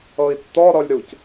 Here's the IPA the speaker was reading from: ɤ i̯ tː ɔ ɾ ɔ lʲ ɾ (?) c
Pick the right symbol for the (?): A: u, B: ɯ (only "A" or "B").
A